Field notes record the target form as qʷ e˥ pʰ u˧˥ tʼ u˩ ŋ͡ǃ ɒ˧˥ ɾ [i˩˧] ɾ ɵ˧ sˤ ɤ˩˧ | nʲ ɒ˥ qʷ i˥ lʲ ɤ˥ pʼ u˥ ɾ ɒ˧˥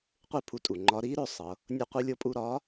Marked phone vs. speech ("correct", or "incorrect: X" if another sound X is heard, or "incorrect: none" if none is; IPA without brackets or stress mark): incorrect: i˧˥